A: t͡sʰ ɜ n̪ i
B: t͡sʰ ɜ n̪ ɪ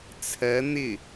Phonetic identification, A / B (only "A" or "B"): B